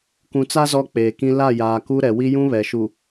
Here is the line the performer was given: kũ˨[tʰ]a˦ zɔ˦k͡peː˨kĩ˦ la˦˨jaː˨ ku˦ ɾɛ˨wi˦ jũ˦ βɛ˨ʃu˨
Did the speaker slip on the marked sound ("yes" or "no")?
yes